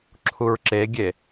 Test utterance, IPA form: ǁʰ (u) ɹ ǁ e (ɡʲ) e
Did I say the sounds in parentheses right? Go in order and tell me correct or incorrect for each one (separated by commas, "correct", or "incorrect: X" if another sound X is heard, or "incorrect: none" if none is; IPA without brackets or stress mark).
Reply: correct, correct